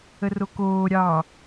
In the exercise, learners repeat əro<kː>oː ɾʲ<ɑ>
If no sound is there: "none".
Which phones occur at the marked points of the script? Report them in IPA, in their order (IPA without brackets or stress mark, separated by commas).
k, ɑ